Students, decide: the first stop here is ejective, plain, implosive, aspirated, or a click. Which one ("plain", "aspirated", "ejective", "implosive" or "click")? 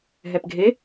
plain